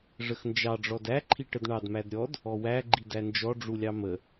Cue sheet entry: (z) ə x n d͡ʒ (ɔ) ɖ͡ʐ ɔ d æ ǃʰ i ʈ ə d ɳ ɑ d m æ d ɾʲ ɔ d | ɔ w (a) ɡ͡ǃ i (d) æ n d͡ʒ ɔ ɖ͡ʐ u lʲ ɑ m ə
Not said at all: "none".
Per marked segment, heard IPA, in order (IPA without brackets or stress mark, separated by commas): ʐ, ɑ, æ, d